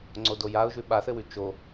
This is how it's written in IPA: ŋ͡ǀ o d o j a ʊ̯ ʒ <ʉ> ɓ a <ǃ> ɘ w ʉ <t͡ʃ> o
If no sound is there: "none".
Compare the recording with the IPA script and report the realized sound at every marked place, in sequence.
ʉ, θ, t͡ʃ

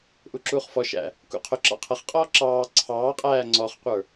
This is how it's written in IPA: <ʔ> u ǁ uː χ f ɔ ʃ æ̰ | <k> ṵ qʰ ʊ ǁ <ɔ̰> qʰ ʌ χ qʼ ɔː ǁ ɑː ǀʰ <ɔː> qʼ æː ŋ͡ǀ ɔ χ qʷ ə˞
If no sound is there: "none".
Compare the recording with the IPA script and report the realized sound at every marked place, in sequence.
ʔ, k, ɑ̰, ɑː

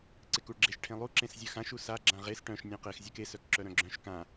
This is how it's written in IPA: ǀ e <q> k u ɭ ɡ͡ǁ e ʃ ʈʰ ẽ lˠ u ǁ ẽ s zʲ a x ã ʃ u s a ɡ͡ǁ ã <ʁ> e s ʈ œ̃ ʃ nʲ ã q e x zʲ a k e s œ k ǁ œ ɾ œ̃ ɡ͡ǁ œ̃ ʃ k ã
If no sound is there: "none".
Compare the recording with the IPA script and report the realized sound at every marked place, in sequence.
none, ʁ

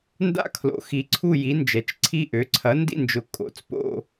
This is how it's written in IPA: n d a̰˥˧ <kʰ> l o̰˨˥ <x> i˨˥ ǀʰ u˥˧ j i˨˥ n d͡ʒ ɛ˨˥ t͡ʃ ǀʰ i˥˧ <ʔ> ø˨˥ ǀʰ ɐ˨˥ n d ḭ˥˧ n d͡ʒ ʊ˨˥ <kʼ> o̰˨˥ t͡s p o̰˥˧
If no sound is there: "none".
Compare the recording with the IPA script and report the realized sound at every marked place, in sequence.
kʰ, x, ʔ, kʼ

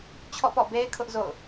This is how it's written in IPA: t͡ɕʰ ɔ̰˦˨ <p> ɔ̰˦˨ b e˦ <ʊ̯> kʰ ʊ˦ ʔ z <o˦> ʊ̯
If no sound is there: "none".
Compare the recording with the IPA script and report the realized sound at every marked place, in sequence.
p, ɪ̯, o̰˦˨

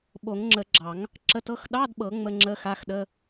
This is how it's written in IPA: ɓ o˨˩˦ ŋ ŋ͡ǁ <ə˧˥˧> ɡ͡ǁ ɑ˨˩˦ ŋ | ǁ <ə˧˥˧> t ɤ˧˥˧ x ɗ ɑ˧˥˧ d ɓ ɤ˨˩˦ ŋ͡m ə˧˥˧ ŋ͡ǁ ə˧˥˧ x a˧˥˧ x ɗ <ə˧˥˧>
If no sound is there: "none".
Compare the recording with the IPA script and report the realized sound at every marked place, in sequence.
ə˨˩˦, ə˧˥˧, ə˧˥˧

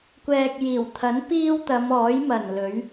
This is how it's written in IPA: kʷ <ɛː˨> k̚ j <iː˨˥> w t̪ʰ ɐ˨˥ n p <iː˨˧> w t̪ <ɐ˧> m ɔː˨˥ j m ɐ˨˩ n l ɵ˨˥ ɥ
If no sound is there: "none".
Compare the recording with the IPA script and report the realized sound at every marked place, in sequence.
ɛː˨, iː˨˩, iː˥, ɐ˨˧

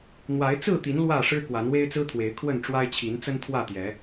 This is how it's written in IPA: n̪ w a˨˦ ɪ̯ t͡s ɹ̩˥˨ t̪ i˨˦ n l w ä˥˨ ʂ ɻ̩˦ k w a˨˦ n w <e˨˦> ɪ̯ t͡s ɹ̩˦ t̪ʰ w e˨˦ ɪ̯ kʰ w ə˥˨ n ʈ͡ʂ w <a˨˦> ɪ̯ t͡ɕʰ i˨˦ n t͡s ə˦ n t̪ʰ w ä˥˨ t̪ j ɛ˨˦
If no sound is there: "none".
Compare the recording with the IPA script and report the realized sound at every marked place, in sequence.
e˦, a˦

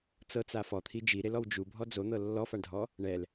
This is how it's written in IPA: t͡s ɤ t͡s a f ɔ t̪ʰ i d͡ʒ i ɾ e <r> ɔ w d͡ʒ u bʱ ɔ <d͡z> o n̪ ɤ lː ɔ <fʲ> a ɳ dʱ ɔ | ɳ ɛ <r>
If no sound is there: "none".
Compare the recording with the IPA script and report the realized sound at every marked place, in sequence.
l, d͡z, f, l

